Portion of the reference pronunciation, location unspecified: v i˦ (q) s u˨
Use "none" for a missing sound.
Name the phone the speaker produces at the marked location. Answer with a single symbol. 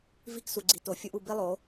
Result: k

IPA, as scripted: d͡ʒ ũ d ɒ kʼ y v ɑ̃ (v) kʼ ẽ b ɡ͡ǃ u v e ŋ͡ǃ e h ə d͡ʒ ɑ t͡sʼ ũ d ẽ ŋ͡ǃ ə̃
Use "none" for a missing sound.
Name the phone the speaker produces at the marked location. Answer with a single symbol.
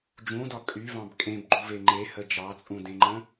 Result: b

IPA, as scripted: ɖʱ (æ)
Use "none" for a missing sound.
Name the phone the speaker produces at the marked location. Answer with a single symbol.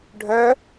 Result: œ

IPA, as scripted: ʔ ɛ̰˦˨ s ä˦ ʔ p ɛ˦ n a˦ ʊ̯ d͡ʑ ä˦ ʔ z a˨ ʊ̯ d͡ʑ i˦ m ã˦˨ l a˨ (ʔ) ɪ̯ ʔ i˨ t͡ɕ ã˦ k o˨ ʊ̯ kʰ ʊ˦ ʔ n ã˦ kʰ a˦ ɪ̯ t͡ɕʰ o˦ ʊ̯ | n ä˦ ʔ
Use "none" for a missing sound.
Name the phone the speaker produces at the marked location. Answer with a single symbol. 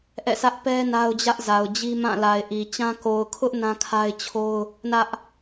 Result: none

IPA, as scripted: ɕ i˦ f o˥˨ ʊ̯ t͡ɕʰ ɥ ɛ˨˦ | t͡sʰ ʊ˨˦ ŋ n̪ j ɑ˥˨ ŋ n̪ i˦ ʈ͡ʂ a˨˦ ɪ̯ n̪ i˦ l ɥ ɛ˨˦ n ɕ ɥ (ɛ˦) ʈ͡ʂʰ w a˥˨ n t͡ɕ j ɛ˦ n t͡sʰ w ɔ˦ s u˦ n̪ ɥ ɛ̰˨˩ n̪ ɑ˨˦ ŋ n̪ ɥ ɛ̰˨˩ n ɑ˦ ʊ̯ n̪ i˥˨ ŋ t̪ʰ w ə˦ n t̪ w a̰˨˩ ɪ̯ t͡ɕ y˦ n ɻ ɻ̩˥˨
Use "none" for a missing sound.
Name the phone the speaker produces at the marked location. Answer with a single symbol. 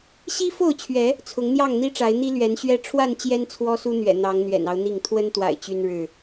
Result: ɛ˦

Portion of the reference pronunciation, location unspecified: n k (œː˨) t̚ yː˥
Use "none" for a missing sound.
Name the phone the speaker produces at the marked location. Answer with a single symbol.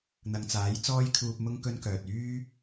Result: œː˨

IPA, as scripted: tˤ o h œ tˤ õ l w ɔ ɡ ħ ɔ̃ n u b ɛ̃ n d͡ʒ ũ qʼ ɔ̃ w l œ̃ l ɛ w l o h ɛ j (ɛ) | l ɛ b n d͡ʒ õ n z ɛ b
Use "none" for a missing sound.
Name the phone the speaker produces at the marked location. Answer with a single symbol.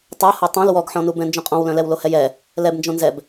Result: ɛ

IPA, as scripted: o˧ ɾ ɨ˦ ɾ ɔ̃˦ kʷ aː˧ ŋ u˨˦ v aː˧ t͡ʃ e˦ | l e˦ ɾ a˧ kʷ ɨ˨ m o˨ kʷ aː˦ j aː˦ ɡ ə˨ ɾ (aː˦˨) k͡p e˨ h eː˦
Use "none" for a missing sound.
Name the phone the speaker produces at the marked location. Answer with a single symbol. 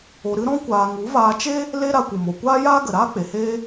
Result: aː˦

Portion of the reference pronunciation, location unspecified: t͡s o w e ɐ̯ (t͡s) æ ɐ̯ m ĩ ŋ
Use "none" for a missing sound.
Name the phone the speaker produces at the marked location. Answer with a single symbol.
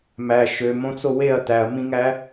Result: t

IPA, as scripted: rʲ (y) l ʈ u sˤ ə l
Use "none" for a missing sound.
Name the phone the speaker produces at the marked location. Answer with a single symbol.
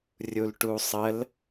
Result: u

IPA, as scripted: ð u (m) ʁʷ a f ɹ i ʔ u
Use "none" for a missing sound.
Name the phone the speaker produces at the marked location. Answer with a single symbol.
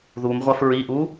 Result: m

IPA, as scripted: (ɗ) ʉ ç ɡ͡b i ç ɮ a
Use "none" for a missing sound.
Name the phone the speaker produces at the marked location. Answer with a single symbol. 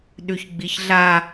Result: ɗ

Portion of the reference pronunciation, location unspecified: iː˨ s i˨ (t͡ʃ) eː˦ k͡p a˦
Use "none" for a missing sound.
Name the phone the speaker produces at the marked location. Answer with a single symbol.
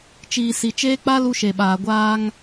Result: t͡ʃ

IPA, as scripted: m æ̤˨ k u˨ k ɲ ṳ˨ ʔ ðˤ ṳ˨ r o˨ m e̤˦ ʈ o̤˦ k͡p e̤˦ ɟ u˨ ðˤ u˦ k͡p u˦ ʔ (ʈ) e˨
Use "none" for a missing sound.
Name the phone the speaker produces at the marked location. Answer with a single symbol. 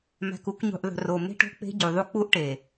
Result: ʈ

